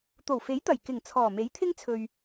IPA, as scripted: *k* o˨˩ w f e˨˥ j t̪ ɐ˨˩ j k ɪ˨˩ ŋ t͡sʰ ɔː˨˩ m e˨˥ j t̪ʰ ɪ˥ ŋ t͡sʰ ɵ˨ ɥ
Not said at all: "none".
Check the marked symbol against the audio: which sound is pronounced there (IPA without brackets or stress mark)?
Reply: t̪